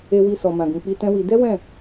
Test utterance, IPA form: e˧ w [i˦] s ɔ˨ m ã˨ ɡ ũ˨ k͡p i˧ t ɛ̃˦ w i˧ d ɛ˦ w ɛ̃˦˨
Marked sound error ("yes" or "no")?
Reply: yes